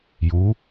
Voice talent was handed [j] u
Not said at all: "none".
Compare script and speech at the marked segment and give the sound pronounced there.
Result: j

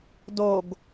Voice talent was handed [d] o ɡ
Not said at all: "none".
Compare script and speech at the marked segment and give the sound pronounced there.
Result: d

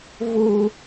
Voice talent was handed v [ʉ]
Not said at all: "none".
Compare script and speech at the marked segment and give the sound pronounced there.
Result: u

